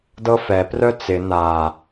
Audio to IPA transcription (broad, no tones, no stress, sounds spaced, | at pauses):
d ɤ f ɛ p r œ t͡s ɪ n a